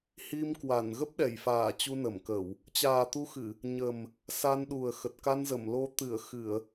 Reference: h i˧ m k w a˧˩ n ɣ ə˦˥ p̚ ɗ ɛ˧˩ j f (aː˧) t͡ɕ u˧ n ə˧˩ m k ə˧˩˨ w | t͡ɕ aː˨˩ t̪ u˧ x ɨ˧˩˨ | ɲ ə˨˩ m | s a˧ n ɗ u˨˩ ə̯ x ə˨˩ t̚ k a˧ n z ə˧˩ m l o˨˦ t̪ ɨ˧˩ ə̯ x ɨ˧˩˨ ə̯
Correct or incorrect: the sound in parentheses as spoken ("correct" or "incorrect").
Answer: incorrect